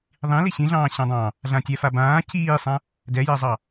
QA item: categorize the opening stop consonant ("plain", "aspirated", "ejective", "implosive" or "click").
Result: plain